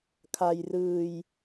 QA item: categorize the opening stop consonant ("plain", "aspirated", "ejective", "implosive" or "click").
aspirated